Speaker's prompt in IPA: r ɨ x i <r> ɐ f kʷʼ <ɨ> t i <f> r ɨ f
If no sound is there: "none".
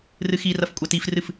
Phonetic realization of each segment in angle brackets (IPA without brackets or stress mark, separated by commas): r, ɛ, f